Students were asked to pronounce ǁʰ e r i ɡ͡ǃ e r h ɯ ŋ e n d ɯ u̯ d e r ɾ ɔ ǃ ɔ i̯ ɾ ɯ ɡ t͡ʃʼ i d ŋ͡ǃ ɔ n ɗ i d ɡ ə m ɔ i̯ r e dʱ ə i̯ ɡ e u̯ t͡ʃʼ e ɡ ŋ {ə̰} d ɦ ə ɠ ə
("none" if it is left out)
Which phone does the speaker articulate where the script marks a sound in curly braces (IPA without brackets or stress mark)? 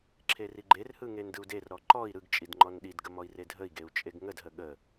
ə